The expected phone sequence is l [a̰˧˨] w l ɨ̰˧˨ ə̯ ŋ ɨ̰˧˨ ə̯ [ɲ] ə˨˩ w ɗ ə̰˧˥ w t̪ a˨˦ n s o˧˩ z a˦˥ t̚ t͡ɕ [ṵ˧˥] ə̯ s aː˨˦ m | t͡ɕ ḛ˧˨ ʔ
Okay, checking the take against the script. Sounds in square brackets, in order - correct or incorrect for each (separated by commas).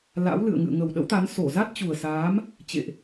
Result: incorrect, incorrect, incorrect